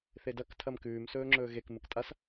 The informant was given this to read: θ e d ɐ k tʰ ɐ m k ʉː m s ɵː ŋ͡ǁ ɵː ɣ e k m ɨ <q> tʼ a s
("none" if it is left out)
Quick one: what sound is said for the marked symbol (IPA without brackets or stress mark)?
k